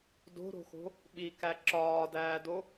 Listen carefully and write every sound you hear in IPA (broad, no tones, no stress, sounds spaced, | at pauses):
d o̤ ɾ o̤ x o̤ | ɓ i k æ ǁ ɒː d æː d o